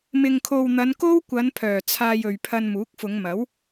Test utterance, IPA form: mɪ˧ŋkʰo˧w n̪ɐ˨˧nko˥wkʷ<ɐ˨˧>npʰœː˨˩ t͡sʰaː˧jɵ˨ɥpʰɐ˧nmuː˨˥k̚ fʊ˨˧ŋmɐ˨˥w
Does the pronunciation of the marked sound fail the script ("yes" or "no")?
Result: no